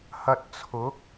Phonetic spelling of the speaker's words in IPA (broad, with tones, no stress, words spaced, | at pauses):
hɐ˧t̚t͡sʰʊ˨˥k̚